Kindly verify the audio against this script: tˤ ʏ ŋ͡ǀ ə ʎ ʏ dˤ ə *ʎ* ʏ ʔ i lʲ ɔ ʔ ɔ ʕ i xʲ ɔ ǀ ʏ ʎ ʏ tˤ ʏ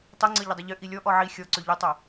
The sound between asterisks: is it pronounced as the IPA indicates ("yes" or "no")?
yes